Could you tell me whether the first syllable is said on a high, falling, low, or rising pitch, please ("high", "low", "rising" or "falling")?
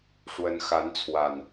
rising